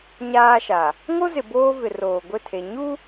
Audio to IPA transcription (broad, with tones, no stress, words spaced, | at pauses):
ɲaː˦ʃa˨ | ŋo˦zɪ˨ boː˦vɪ˨ roː˨ ɡʷɪ˦˨tʰe˨ ɲu˦